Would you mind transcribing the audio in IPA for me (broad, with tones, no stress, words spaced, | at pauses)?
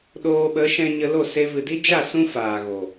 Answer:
ɗoː˧ɓə˨˦ ʃɛ̃˧ɲə˧ lo˦˨se˧ vɨ˨di˦d͡ʒa˦˨ sũ˦faː˨ɣo˨